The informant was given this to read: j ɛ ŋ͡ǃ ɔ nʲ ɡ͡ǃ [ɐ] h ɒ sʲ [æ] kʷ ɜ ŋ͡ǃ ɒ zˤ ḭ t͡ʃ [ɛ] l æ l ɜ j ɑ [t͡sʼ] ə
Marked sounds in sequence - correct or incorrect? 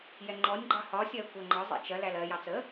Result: incorrect, incorrect, incorrect, incorrect

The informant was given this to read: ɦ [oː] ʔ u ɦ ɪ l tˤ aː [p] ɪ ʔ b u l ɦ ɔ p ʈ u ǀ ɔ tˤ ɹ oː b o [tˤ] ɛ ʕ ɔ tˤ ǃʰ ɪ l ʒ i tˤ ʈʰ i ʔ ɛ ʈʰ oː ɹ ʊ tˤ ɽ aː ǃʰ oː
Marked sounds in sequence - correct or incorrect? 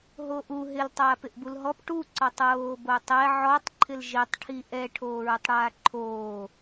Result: correct, correct, correct

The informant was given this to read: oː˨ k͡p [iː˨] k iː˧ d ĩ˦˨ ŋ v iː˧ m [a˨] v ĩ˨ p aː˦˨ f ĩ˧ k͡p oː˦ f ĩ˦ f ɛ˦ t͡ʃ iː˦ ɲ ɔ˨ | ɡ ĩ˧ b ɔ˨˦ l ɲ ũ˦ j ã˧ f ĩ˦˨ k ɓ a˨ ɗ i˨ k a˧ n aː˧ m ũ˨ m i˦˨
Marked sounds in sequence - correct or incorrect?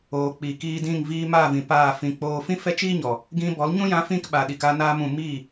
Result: correct, incorrect

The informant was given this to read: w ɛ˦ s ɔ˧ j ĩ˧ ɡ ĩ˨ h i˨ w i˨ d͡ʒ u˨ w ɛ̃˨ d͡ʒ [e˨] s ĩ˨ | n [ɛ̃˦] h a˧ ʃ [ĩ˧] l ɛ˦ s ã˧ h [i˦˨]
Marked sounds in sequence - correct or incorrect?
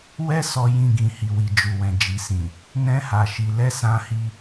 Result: incorrect, correct, incorrect, incorrect

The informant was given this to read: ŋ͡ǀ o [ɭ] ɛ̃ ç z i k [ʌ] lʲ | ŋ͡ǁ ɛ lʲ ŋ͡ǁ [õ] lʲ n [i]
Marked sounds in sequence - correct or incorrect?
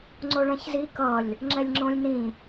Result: correct, correct, correct, incorrect

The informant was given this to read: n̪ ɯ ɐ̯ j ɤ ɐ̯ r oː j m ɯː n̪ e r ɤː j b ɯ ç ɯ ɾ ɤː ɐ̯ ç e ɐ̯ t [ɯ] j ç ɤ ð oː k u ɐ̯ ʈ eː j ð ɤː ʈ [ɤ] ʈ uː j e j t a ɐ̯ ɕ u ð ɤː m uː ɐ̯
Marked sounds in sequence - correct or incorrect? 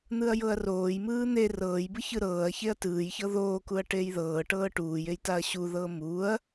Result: incorrect, incorrect

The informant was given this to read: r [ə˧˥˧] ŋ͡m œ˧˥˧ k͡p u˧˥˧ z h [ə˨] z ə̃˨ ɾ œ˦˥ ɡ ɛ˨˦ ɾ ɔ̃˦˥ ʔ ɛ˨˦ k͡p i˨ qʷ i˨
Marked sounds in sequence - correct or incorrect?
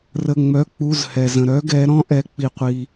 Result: correct, incorrect

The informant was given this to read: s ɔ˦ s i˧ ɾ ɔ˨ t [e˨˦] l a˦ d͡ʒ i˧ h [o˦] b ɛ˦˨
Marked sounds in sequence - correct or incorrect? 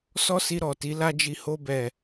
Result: incorrect, correct

